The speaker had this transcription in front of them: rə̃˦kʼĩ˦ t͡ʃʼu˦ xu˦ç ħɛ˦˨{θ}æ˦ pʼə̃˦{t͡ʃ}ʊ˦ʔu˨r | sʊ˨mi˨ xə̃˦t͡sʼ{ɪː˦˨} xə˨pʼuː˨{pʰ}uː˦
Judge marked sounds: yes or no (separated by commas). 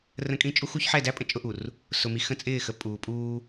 no, no, yes, no